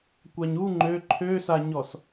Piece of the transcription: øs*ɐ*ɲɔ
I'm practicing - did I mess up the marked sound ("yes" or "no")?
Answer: yes